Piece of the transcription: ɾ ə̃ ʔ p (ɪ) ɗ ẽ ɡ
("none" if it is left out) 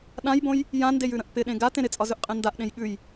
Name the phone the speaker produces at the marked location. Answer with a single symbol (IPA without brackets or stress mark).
ɪ